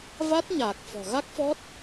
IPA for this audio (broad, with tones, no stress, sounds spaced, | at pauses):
v a˦˥ t̚ ɲ aː˨˩ k̚ f ɔ̤˨˩ ɣ a˦˥ k̚ f ɔ˦˥ t̚